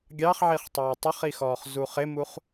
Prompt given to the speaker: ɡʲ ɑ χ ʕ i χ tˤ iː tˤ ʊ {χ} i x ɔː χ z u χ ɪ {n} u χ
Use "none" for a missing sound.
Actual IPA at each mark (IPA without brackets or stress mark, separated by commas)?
χ, m